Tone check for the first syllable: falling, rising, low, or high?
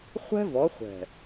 high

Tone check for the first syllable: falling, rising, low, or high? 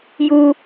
high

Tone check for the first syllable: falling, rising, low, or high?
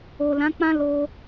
low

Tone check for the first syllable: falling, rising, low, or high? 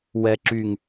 low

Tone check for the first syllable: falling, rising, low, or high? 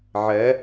rising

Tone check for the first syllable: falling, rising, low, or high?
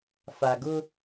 low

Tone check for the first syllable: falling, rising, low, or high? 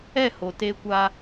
falling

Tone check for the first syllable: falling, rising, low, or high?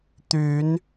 rising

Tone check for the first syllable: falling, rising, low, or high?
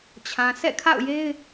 low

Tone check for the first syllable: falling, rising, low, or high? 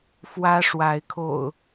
high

